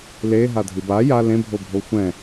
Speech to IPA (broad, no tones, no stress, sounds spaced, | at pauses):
l e ɦ a dʱ ɨ b a j a l ẽ bʱ o bʱ o xʷ ɛ̃